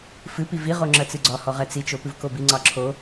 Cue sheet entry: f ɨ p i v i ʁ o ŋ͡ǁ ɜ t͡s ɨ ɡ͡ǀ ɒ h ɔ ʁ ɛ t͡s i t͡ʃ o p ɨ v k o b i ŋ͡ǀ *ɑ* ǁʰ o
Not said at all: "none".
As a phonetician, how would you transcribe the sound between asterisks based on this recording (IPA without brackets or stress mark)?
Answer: ɑ